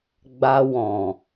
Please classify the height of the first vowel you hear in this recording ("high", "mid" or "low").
low